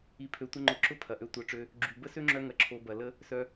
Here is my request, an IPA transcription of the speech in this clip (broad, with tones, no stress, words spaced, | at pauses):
i˧pʰø˧tʷə˦ ŋ͡ǃʊ˨˦ǁʊ˦ pʰɐ˨ʔø˦tʷœ˧ʈ͡ʂø˦ | ɡ͡ǁy˨ bə˦sø˦ŋ͡ǁœ˧ ŋɐ˧ǁʰo˧ bɐ˨lə˦ | sœ˧